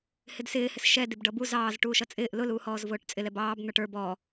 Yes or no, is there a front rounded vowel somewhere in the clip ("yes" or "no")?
no